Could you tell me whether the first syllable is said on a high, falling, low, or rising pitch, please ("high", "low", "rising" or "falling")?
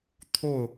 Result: falling